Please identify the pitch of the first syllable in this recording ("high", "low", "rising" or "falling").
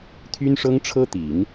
high